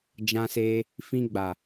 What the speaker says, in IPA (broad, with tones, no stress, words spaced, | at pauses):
d͡ʒã˧seː˧ | fĩ˧ɡ͡ba˨